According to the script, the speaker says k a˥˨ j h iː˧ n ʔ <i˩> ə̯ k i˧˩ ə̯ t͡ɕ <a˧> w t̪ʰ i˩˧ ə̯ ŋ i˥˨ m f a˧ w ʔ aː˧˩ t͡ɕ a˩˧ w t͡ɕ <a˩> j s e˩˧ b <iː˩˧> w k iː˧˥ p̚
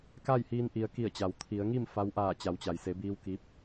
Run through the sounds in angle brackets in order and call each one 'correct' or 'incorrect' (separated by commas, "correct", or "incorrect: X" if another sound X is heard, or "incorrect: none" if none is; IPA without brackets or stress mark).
correct, incorrect: a˩, correct, incorrect: iː˧